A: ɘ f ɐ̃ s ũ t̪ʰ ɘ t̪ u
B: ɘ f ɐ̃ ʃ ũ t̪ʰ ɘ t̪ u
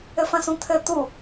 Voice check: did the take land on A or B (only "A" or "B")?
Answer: A